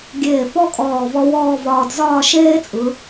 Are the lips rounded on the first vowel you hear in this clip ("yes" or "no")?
no